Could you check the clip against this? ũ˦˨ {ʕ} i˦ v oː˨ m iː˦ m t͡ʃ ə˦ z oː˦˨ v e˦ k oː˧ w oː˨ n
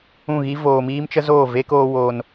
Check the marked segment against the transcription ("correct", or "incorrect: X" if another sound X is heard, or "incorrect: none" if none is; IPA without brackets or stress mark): incorrect: ɣ